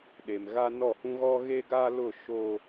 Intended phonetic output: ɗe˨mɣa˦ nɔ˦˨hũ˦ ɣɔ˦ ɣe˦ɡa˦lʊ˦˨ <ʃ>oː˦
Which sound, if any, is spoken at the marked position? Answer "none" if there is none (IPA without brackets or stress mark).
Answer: ʃ